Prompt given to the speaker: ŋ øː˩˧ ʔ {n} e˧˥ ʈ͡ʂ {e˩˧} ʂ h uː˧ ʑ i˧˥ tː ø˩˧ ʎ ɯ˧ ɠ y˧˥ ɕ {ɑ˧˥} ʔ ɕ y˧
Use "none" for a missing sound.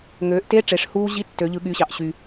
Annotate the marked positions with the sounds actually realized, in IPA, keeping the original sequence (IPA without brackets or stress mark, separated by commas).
t, e˩˧, ɑ˧˥